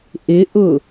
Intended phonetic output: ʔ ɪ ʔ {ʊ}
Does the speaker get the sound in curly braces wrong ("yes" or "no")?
no